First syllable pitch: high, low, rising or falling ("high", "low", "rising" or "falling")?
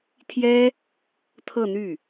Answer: high